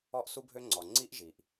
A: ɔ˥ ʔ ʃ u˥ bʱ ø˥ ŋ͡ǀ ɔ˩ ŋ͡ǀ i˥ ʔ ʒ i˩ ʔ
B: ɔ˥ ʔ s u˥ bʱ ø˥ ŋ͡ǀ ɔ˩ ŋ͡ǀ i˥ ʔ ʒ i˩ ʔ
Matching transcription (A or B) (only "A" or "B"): B